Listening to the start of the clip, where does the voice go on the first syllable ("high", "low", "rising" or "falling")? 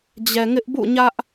low